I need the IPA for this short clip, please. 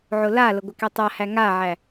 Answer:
ʕ ʊ l a l ə ɡʷ ɪ k ɛ tˤ a h æ ŋ a ʕ æ

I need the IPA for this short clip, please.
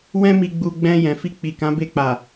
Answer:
w ɛ̃˧ m i˨ ɡ͡b u˨ ɡ͡b ɛ̃˧ j ɛ̃˨ f i˧ k͡p i˨ k ã˨˦ b e˧ k͡p a˨

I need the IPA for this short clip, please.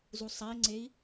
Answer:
z u sˤ æ i̯ ŋ͡ǀ e i̯

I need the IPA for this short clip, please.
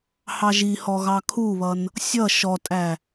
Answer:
h ɑ ʒ i h ɔ ɣ ɑ kʰ u β ʌ n | sʲ ʌ ʃ ɔ tʼ æ

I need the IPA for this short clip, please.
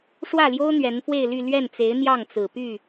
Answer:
ʂ w ä˥˩ l j o˥ ʊ̯ n̪ ɥ ɛ˧˥ n f w e˥˧ ɪ̯ l y˥˧ l ɥ ɛ˥˩ n t͡s e˧˥ ɪ̯ n̪ j ɑ˥˩ ŋ t͡s ɹ̩˨˩ p y˥˩

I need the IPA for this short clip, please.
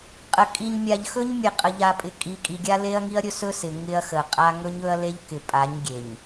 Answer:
qʼ ə˨ kʼ i˨ ɲ mʲ a˨ ʎ x ɵ˦ ɲ mʲ e˨ qʼ ə˨ ʎ a˨ pʼ ɪ˨ kʼ i˨ kʼ i˨ ɡʲ a˦ l e˦ ɐ̯ ŋ i˦ ɐ̯ ɾʲ ɵ˦ s ɵ˦ s ɪ˨ ŋ ɪ˦ ɐ̯ x ə˨ qʼ a˦ ŋ ɵ˦ ɲ ɵ˦ ɐ̯ l e˦ ʎ k ɪ˨ pʼ a˨˦ ɲ ɡʲ e˨ ɲ

